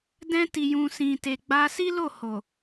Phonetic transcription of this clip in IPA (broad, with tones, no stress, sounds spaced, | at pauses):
d ɛ̃˧ t i˨ j ũ˨ s ĩ˨ t e˨ ɡ͡b a˧ s i˦ l o˦˨ h o˨